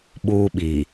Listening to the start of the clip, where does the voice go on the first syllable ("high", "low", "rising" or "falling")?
high